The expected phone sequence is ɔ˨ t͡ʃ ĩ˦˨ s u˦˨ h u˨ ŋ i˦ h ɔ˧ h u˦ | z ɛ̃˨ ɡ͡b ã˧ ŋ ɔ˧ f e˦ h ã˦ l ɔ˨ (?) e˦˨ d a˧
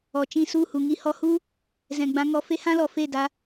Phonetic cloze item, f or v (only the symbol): f